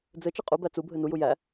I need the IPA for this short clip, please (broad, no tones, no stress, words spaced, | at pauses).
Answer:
d͡zɘ t͡ʃɘqʼubæ t͡subʱɘ nuju jæ